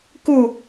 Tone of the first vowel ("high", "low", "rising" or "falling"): falling